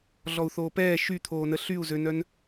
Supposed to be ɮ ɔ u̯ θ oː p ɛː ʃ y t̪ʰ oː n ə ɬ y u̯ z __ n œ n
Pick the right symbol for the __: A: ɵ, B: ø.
B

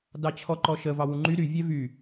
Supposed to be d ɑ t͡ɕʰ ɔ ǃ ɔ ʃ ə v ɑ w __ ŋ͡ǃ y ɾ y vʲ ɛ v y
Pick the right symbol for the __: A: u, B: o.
A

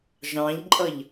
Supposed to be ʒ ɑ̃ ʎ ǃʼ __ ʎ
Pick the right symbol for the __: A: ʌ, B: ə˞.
A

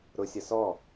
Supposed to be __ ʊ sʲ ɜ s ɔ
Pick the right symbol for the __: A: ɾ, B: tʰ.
A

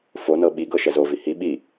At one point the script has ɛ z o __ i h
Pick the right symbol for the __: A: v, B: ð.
A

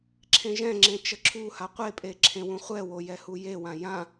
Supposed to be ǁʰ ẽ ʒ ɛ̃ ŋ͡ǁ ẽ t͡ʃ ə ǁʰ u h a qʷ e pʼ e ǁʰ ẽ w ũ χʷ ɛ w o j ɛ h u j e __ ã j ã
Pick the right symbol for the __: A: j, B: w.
B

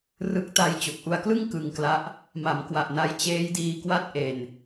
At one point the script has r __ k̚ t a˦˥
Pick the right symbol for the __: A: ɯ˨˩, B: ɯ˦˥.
B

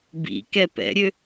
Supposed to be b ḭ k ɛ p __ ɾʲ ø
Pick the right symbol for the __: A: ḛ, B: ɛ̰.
B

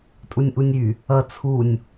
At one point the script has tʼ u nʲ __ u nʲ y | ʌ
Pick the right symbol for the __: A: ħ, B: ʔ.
B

